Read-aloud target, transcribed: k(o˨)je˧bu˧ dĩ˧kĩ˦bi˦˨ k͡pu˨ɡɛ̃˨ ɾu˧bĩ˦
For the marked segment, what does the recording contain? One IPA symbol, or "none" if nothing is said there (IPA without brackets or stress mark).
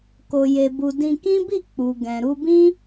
o˧